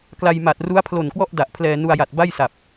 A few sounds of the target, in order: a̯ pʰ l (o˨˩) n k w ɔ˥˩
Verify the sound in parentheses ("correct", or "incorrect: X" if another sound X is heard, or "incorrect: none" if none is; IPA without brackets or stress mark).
correct